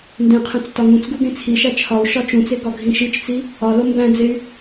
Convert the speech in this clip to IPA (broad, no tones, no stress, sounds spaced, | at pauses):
n d ẽ qʰ ẽ t͡s t ɒ ŋ ũ t͡s ɡ u ɡ ẽ t͡sʰ i ʃ æ t͡ʃʰ ɒ u̯ ʃ ɒ t͡ʃ ũ t͡s e ɡ ɒ ɡʱ ĩ ʃ i t͡ʃ t͡s i | ɒ l o m b æ̃ d͡z e y̯